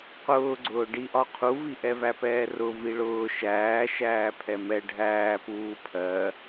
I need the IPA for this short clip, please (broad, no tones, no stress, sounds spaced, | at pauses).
q ʊː ɡ͡ǀ ʊː ɖ i ʔ ɒ qʰ u v i ʔ ɛ v æ p ɛː r ʊ v i ɭ ʊː ʃ æː ʃ æː pʰ ɛ m ɛ ɖʱ æː p uː pʰ ɜ